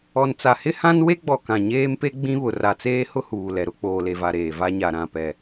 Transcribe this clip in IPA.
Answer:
ɔ˨ n t͡s a˨ h ɪ˦ h ã˦ n w e˦ ɡ͡b ɔ˨ k ã˨ ɲ eː˦ m p e˦ ɡ͡b ĩ˦ β ʊ˨ r a˨ t͡s eː˦ h ʊ˦ h uː˨ l ɛ˨ ɾ ʊ˦ k͡p oː˨ l e˨ v a˨ ɾ eː˨ v a˦ ɲ a˨ ɾ ã˨ p ɛ˨

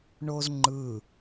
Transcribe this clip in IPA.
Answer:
ɳ o z ŋ͡ǃ ɯ

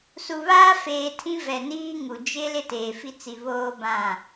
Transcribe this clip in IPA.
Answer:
s u˨ β aː˦ f eː˨ tʰ ĩ˦ v ɛ˨ n iː˦ ŋ u˨ d͡ʒ ɪ˦ l ɪ˦ t eː˨ f i˦ t͡s i˨ β oː˦ b ã˦˨

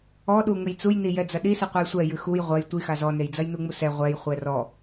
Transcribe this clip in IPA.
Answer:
ɔ ɗ u ŋ ɘ j t͡s u j n i j ɛ d͡z ɐ ɗ i s ɨ qʷ a j sʷ ɛ j ɨ x u j ʁʷ ɐ j tʷ i x a z ɔ n e j d͡z ɐ j n u ŋ͡m u s ɛ ʁʷ ɛ j χʷ ɛ r ɔ

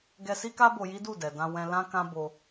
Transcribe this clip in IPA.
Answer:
ɡ ɛ˧ s i˦ k a˦ b o˧ j i˦ d u˦˨ d ɛ˨ d ã˧ w ɛ̃˧ l ã˦ k ã˦ b o˧

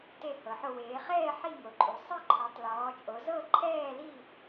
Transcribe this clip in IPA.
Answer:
t e˥˧ h ɤ˨˦ ħ o˥˧ w eː˨˦ χ ɛː˥˧ ħ i˥˧ ŋ o˨˦ ǃʼ u˨˦ sˤ e˥˧ ǃʰ ɔ˨˦ tˤ l ɔː˨˦ t͡ʃʼ o˨˦ z ɤ˥˧ ǃʰ ɛː˥˧ l i˥˧

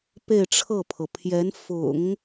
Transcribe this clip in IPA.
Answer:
p e˥˧ ɪ̯ ʈ͡ʂʰ ɤ˥˩ pʰ ɤ˩ pʰ j ɛ˧˥ n f ʊ̰˨˩˦ ŋ

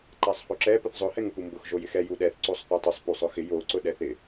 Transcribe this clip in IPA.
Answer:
ǃ a sˤ h o ǁ ɛ p ʊ θ zˤ ʊ h ɛ ŋ ʊ p u m b ʊ x ʒ o j ɪ x ɛ j u ɗ ɛ θ ǀ o sˤ θ o tˤ o sˤ p u sˤ ʊ x ɪ j o ǀ ʊ ɗ ɛ θ ɪ

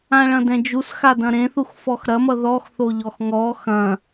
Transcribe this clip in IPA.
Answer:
ã ɭ ɐ̃ d ɛ̃ d͡ʒ u s x a d ɐ̃ ɾ ẽ θ u x f ɔ x ɾ ɐ m ʌ ð ɔ x θ o ʎ ɔ x ŋ ɔ x ɐ̃

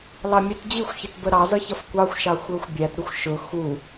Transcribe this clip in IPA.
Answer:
l ɑ mʲ ɛ t d͡ʑ i xʷ ç ɪ t b ə ɾ ɑ z ʌ ç ʌ f kʷ ɑ xʷ ʃ ɑ xʷ ə˞ xʷ bʲ æ t ɾ ʊ xʷ ʃ ʊ x u

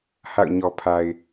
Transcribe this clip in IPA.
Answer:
h a̰˦˨ ʊ̯ ɲ ɔ˨ pʰ a˨ ɪ̯

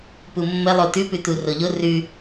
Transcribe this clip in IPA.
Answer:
p u mː ə lˠ o t ʉ p ʉ t u r o ʎ o r ʉ

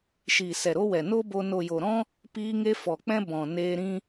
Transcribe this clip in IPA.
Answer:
ʃ iː˨ s ɛ˨ ɾ o˧ w ɛ˨ n o˦ b o˧ n o˨ j o˨ ɾ ɔ̃˦ | p iː˧ ŋ e˧ f ɔ˨ k͡p ɛ̃˧ b ɔ̃˨ n eː˧ ɾ ĩ˦

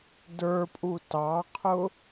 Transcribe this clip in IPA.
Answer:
d ə˞ pʼ u t ɑ qʰ ʊ

